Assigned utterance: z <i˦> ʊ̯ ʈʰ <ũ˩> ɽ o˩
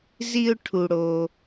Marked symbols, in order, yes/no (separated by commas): yes, no